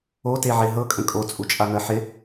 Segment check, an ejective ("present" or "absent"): present